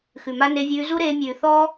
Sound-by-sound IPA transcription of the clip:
xʉ˨ma˧ne˧vʲʉː˧ zu˦ɾeː˧ mʲʉː˨θɔː˦

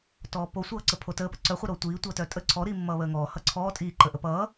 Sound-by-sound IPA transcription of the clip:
tɔːposʷʌːǀə pʰotəːpə ǀœχʷʌ ɾotʷiː tʷʌːtœtʼə ǀʰɔɾiː mːʌːβəːŋɔː hʌǀʰɔː tʼiːǃə ʔəpʌː

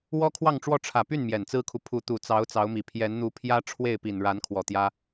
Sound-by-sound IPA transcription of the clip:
wɔ˥kʰwɑ˥˧ŋʈ͡ʂwɔ˥˩ ʈ͡ʂʰä˨˩py˥˩n mjɛ˨˩nt͡sɹ̩˥kʰu˨ pʰu˧˥t̪u˨˩t͡sɑ˧˥ʊ̯ t͡sɑ˧˥ʊ̯mi˨˩ pʰjɛ˧˥nn̪u˧˥pʰjä˥ ʈ͡ʂʰwe˥˩ɪ̯ pi˨˩nɻa˧˥n kʰwɔ˨˩ t̪jä˥

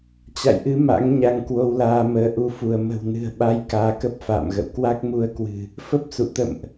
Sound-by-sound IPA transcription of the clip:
t͡ɕa̰˧˨jʔɨ˨˦ ma̰˧˥ŋɲa˧ŋ kwo˧wlaː˧məː˨˦ʔu˧ fu˧˩ə̯mə̤˨˩wnɨ̤˨˩ə̯ɓa˨˦j kaː˨˦kə˦˥p̚fa̰ː˧˨mɣə̰˧˨w kwa˦˥k̚mu˧ə̯kwɨ̤˨˩ | fə˦˥p̚sṵ˧˨ t̪ə̰˧˨mʔ

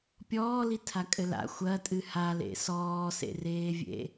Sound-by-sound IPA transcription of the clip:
pʲɔːlitʰa kʼɘla̰ xʷɐ tʼɨhalḛ sɔːsḛreːvʲḛ

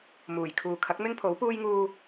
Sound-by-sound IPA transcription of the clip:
muː˨˩jkʰuː˨ kʰɐ˨˥k̚mɪ˥ŋpʰo˨˥w puː˥jŋuː˥

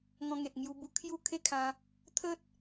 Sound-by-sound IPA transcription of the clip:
ŋɔ̃˧ŋe˨t̚ ŋju˧bu˧kʰju˥˧ kʰe˥˧kʰã˧ | t̪ʰə˦t̚

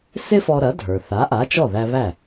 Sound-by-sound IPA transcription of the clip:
sɪ˥ fɔ˧ɾɐ˩˥ dʱə˞˩θa˩˥ʔa˩˥ t͡ʃɔ˥˩ðæ˧βæ˥˩

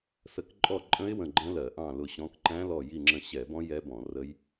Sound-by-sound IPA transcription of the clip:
sə˧˩˧kǃʼɔ˦˨ǃʼə̃˦˥ɪ̯ wə̃˦˨ɡ͡ǃə̃˦˥lɜ˧˩˧ʔɑ̃˦˨ lʊ˦˨ɕɔ̃˦˥k ǃæ̃˦˥lɔ˦˨ ji˦˨ŋ͡ǁə̃˦˨ ɕɛ˧˩˧bɔ̃˦˥ jɛ˦˥bɔ̃˧˩˧rə˦˥j

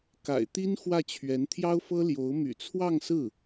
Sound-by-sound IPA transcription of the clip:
ka̰˨˩ɪ̯t̪i˥n xwä˥˩t͡ɕʰɥɛ˧˥n t̪ʰjɑ˥ʊ̯fɤ˥ ljo˧˥ʊ̯ my̰˨˩t͡sʰwɑ˥˧ŋsɹ̩˥˩

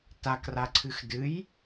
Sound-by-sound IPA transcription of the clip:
takraǀʰɨx dɨj

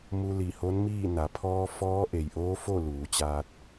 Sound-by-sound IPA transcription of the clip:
mu˧li˧˩ho˧˥nmiː˥˨ na˩˧pʰɔː˧ fɔː˧˥ʔe˩jʔoː˧˥ fo˥˨luː˩˧t͡ɕaː˧t̚

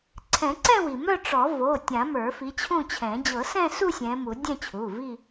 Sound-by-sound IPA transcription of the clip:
ǀʰɛ̃˨˩˦ǀɛ̃˥˧wi˩mœ˥˧ ʈ͡ʂɔ˨˩˦vo˩˧˩tʲã˨˩˦ mə˞˨˩˦fi˨˦t͡ɕʰũ˥˧t͡ɕʰɛ̃˨˩˦ d͡ʑɤ˨˩˦sɛ̃˥˧su˥˧ sʲɛ̃˨˦mu˨˩˦ dʲɛ̃˥˧t͡ɕʰu˩˧˩vi˥˧

